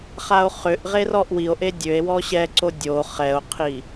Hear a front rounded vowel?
yes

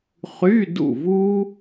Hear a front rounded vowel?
yes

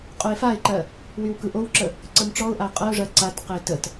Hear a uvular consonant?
yes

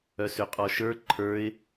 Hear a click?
yes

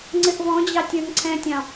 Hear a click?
yes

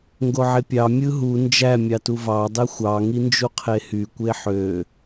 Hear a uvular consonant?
yes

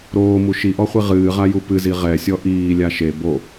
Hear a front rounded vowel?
no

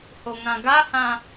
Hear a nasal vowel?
yes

